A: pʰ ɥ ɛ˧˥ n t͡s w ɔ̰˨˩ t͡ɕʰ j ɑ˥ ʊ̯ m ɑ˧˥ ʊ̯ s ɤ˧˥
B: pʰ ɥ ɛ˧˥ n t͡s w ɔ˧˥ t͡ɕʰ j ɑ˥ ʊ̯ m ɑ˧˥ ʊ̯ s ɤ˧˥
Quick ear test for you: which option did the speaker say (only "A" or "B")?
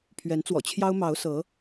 A